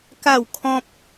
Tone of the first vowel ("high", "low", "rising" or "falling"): falling